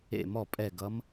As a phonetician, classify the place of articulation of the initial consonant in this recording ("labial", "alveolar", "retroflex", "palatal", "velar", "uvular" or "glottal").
labial